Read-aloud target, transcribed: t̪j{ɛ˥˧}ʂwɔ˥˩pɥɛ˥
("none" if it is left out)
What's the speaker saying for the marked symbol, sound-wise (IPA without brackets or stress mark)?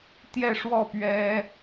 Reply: ɛ˥˧